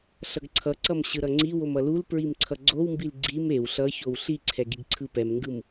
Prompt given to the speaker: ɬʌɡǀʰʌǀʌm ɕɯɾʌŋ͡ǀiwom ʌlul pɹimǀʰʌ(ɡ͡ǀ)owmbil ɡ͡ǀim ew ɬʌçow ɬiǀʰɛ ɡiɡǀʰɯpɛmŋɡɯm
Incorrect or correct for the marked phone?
correct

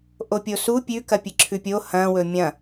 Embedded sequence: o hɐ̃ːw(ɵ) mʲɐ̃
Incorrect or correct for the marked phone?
correct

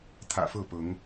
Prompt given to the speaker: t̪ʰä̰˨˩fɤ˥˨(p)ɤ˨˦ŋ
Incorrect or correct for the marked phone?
correct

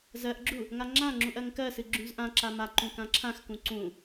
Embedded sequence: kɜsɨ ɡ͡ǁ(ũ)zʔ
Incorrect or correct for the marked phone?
correct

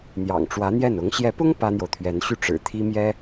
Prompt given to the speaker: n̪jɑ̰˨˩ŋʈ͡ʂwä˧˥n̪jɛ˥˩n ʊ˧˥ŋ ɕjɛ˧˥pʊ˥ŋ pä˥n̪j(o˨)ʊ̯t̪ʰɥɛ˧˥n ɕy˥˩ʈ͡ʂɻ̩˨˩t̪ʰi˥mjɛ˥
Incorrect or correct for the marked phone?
correct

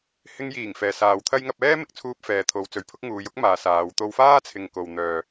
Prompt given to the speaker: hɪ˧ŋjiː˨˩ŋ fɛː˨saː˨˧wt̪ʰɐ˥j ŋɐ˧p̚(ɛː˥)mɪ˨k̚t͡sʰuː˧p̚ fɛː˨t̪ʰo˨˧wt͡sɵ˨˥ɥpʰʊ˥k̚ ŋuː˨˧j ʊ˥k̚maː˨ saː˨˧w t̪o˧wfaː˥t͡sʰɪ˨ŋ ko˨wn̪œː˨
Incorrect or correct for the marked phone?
correct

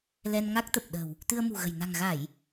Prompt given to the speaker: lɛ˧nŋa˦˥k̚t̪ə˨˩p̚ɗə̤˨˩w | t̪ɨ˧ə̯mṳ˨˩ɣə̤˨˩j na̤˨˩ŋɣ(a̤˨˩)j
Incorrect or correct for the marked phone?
incorrect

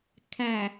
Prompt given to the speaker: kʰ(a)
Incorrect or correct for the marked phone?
incorrect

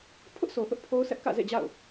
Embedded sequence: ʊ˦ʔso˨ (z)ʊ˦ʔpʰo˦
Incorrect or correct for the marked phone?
incorrect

